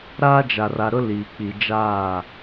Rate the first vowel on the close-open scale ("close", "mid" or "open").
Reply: open